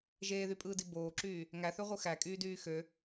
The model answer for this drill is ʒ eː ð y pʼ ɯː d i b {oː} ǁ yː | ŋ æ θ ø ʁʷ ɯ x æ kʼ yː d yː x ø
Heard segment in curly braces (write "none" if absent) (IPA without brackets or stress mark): oː